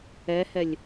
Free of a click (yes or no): yes